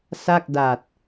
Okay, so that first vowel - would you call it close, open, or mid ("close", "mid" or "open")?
open